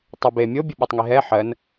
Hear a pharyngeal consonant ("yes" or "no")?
yes